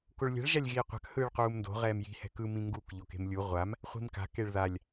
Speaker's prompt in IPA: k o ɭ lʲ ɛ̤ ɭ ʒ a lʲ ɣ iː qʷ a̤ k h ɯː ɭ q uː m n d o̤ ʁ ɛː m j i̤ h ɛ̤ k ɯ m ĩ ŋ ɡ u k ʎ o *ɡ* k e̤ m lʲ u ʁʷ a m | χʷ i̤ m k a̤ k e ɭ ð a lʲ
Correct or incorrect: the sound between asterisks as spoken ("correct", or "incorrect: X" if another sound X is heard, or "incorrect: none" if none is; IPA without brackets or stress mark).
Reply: incorrect: none